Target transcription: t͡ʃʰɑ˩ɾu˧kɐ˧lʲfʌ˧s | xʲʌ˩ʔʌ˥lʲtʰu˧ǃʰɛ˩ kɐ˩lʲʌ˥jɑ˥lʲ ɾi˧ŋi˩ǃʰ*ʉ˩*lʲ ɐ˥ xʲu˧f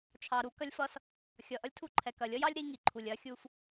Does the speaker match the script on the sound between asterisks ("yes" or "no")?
no